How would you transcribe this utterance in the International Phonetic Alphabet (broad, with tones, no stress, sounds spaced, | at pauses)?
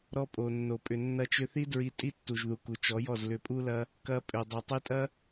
ɾ ɔ˧ pʼ o˨ nː o˨ pʼ ʏ˨ nː ɐ˧ t͡ʃ ʏ˧ θ i˦ d ɹ i˧ tʼ i˦ tː u˨ ʒ ð u˨ k u˨ t͡ʃ ɔ˨˦ j ɔ˦˨ z l ʏ˧ pʼ u˦ l ɐ˦ | k ɐ˧ pʼ ʏ˨ dˤ o˨ tˤ i˧ tʼ ɐ˦